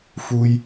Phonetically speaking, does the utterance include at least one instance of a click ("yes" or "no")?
no